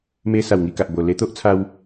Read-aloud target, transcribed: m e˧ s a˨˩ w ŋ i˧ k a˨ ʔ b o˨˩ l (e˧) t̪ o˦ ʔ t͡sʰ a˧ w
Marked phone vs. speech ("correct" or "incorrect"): correct